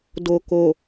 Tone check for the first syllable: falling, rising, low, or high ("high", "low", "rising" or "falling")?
low